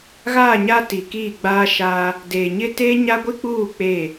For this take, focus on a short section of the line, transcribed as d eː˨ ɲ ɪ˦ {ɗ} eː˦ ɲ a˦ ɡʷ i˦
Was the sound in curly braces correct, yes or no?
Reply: no